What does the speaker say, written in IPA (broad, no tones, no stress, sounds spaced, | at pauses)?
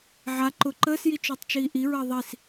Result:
ʕ a ǃ ʊ ǃ əː s j i t͡ʃ ʊː tˤ t͡ʃ iː ʔ i ɹ əː ðˤ i s